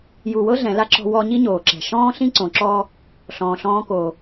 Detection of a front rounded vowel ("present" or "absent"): absent